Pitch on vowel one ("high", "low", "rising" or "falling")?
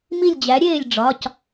falling